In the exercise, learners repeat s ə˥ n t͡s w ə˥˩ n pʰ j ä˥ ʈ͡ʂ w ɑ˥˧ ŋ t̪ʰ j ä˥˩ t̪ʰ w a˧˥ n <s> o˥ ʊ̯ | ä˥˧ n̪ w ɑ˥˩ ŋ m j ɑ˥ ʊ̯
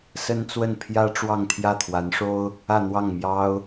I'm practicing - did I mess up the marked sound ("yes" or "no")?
yes